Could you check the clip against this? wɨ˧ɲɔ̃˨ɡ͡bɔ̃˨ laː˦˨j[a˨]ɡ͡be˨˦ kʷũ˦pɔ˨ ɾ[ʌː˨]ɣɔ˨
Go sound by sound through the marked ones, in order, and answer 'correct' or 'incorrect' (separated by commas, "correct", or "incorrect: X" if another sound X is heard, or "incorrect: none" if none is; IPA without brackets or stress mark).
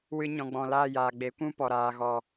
incorrect: aː˨, incorrect: aː˨